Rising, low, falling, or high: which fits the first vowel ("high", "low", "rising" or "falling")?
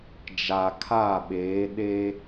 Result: low